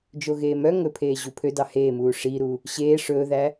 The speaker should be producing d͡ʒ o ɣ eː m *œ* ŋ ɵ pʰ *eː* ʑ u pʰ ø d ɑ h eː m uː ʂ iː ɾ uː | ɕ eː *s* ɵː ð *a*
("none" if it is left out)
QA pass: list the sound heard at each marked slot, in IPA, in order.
œ, eː, ʂ, æ

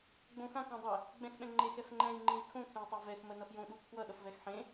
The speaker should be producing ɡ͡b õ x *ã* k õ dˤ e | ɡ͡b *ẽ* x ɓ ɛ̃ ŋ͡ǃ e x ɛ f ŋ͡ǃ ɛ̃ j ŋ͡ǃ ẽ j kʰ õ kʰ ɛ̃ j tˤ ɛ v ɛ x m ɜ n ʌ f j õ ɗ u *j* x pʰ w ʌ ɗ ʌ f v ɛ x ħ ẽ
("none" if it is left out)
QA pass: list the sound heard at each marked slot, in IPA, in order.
ã, ɛ̃, none

